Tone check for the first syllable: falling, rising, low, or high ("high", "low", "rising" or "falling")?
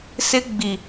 high